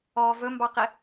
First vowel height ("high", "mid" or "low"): mid